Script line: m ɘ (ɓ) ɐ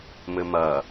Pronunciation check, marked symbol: incorrect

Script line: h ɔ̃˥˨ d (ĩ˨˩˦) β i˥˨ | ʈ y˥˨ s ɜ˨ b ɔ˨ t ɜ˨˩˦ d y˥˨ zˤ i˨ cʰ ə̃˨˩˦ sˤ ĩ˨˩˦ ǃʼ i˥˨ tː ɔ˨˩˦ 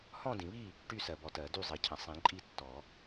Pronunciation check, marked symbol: correct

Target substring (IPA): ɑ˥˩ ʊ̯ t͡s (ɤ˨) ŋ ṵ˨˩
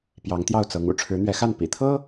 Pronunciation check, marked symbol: incorrect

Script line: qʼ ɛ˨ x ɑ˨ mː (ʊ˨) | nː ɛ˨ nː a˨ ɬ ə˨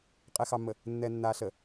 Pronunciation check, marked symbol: incorrect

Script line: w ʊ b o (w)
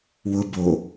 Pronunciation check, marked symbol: incorrect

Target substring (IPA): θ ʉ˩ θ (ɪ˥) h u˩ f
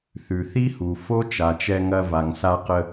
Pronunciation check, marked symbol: incorrect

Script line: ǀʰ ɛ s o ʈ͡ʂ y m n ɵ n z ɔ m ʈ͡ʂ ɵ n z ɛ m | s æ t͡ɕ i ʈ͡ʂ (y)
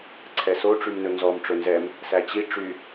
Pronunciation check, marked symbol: correct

